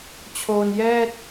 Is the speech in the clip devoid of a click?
yes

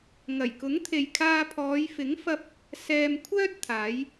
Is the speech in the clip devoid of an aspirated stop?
no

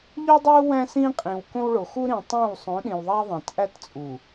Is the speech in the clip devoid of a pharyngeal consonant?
yes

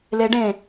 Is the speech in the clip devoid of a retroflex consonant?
no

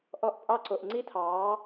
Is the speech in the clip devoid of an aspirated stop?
no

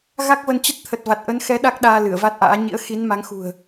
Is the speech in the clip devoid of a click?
yes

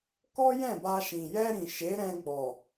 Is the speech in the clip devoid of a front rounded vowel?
yes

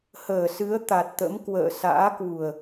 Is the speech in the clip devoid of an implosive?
yes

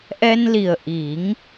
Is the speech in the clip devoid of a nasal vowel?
yes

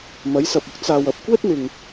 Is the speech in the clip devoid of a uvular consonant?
yes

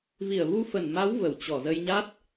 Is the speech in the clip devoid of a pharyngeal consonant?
yes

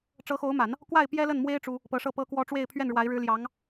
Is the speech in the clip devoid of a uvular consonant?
yes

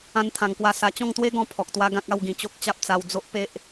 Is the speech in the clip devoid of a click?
yes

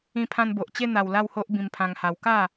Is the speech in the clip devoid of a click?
yes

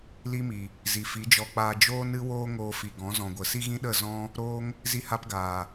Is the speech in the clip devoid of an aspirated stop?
yes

